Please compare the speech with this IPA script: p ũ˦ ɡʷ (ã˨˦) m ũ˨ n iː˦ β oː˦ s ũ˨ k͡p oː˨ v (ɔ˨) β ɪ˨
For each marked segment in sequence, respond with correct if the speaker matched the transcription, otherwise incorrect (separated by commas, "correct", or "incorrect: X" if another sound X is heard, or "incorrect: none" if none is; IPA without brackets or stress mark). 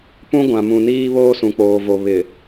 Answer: incorrect: ã˨, incorrect: o˨